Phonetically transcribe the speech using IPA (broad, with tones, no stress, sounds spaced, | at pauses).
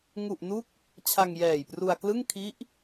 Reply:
ŋ u˨˩ ʔ n u˦˥ k̚ | t͡ɕʰ a˧ ŋ j ɛː˨˩ j p r u˧ a̯ k l ɯ˥˩ ŋ kʰ i˦˥ ʔ